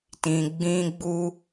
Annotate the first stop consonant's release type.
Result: plain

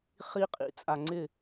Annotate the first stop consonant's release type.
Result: ejective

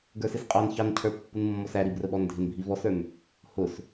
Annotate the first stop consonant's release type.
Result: plain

